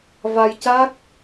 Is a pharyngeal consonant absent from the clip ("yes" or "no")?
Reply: yes